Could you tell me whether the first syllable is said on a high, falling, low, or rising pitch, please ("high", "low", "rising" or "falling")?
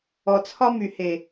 low